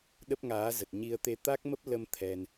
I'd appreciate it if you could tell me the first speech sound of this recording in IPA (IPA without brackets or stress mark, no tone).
ɗ